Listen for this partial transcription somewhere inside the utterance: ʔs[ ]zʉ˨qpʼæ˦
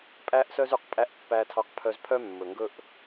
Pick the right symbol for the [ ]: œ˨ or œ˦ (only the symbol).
œ˦